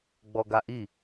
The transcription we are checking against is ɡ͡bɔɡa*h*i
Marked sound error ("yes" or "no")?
yes